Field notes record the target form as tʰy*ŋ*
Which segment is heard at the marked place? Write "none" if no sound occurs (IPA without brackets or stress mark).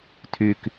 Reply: k